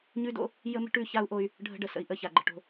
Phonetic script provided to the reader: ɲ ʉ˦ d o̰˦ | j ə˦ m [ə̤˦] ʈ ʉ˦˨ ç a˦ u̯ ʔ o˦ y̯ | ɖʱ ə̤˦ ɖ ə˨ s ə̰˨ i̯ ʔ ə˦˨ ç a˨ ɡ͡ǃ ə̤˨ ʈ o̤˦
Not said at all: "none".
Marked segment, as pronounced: ə̤˦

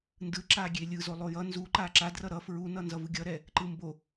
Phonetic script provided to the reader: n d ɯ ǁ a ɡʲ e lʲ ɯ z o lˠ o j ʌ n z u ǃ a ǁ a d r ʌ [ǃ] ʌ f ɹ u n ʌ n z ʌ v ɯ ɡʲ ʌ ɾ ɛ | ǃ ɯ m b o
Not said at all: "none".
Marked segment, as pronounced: ɾ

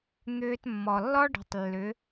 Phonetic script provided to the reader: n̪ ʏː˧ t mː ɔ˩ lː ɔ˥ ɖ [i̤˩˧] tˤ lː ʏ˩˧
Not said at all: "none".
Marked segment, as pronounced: i̤˩˧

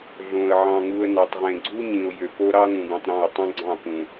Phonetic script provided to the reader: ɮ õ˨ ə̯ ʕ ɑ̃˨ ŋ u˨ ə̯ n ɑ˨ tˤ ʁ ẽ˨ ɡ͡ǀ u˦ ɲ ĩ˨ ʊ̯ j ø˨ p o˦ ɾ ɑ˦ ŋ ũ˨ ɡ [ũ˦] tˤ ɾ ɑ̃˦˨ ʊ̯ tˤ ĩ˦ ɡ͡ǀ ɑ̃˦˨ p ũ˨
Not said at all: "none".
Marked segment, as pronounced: ũ˨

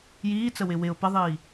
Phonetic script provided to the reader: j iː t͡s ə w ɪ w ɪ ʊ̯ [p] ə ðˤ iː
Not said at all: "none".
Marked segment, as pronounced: p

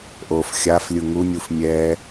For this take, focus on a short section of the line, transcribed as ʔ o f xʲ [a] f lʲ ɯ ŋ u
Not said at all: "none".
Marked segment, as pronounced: a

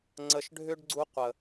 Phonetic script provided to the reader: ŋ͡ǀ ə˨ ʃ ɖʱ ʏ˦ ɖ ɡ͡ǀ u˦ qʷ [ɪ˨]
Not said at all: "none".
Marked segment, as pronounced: ə˨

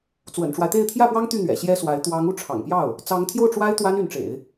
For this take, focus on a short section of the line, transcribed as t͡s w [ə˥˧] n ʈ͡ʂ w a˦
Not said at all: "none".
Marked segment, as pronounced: ə̰˨˩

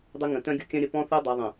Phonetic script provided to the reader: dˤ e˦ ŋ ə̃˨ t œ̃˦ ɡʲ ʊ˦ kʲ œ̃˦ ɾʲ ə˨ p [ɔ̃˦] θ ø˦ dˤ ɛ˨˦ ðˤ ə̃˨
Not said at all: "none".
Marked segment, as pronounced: ɔ̃˦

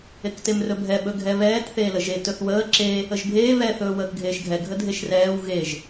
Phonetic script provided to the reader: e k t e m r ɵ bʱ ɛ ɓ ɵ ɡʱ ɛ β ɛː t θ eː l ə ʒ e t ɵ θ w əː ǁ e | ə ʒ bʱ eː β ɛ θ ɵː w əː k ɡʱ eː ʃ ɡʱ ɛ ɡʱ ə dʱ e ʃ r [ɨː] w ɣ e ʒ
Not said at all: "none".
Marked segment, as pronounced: ɛː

